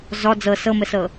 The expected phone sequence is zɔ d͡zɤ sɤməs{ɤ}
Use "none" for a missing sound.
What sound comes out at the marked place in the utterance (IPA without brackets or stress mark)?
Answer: ɤ